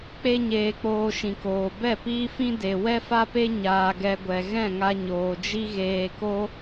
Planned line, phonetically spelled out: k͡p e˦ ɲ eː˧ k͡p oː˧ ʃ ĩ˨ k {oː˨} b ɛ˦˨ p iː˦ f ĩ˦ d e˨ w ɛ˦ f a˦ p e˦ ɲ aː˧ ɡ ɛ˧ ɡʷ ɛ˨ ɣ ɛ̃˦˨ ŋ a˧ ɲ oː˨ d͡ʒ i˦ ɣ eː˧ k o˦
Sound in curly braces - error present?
no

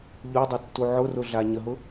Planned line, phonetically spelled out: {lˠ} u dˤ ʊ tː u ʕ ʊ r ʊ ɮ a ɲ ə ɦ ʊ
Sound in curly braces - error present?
yes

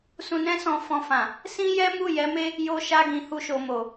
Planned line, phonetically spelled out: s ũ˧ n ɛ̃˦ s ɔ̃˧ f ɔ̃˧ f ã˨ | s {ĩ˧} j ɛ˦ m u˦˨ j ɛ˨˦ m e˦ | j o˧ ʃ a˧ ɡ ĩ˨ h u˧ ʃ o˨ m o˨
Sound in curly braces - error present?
yes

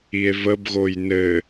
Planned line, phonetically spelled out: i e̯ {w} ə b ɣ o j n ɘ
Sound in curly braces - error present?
yes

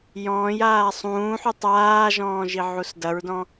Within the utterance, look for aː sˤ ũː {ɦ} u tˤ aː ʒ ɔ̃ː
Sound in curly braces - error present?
yes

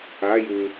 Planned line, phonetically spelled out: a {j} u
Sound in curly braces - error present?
no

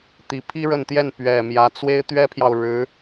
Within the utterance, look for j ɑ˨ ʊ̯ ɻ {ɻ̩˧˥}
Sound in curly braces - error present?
no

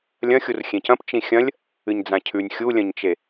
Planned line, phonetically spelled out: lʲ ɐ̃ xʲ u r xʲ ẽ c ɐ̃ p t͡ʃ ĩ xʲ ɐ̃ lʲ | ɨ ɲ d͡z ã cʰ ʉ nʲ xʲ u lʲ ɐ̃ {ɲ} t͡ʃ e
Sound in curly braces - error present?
no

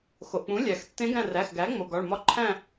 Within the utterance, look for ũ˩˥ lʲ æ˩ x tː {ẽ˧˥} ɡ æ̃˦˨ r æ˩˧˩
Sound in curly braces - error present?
no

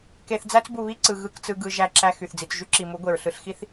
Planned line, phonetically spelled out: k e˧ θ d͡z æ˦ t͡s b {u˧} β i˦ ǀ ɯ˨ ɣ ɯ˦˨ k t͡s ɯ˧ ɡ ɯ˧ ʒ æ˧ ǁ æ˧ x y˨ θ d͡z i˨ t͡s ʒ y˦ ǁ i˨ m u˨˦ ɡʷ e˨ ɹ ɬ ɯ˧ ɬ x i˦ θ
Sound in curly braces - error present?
no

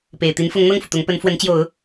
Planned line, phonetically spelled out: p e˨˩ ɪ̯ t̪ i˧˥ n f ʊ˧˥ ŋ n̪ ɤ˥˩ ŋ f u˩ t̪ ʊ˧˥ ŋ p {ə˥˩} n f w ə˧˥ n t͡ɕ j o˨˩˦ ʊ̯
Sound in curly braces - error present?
yes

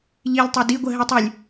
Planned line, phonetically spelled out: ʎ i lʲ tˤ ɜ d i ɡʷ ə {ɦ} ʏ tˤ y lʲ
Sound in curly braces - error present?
no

